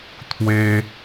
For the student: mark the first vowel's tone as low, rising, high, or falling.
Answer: high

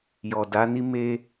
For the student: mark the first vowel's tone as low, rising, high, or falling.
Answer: low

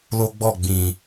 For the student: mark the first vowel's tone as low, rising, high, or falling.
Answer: high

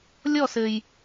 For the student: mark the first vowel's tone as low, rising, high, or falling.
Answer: falling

